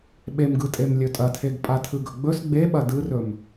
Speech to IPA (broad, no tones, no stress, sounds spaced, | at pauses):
ɓ e m ɡ ɯ tʼ e m lʲ ɵ tʼ ɐ tʰ e ɡ pʼ a tʰ ɯ ɡ ɵ ɡ͡b ɵ s ɡ͡b e ɓ ɐ d ɯ r ɵ m